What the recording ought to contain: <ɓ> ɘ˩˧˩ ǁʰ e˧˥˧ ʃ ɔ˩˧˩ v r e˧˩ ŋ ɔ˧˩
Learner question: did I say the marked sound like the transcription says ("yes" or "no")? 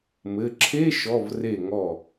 no